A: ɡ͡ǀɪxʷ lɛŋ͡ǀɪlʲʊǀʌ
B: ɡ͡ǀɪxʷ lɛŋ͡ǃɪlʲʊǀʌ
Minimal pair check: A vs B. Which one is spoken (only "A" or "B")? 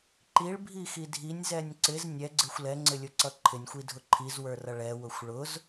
A